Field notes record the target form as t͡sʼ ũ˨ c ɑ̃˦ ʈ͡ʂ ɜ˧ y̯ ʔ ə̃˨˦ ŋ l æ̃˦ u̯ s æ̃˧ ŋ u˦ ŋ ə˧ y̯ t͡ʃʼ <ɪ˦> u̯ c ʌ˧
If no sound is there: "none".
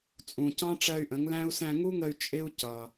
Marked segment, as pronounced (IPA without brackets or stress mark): ɪ˦